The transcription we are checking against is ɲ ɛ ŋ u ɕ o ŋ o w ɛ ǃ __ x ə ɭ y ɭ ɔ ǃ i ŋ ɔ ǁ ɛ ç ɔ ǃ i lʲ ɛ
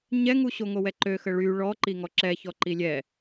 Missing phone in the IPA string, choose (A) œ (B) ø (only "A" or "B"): B